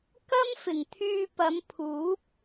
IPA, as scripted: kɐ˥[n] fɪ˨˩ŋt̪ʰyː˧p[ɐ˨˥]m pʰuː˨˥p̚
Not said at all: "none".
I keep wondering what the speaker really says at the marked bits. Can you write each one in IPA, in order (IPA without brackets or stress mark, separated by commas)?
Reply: m, ɐ˨˧